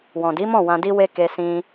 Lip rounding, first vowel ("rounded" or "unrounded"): rounded